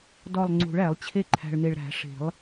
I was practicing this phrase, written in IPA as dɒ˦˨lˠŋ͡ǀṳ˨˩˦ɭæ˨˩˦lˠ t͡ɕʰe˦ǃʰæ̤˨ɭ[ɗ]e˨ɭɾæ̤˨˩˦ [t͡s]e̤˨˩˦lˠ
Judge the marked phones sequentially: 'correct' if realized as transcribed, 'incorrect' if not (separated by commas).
incorrect, incorrect